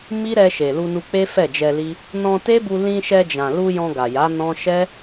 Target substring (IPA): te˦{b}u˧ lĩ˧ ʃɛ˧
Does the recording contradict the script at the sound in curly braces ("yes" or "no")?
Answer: no